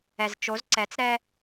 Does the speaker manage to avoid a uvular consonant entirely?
yes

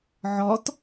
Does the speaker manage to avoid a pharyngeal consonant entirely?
no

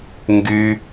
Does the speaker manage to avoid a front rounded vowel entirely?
no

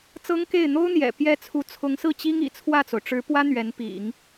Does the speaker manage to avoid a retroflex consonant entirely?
no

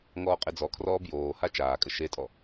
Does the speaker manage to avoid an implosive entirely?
yes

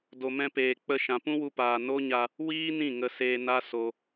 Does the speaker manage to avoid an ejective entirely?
yes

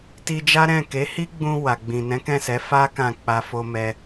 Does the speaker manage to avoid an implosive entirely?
yes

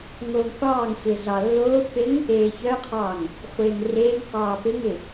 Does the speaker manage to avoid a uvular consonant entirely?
no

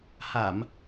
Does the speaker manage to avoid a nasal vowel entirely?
yes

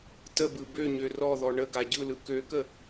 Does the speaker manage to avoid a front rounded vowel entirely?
no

